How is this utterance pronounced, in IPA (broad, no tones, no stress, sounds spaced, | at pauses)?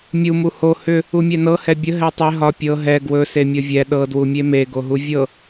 mʲ u m u h o h ʏ | u mʲ ɛ n ɤ h ɛ bʲ ə ɦ ɛ tˤ e ɦ ɒ pʲ ɤ ɦ ɛ ɡ w ɵ s e mʲ ɤ vʲ ɛ ɗ ɤ d w u mʲ e m e ɡ o ɦ u vʲ ɤ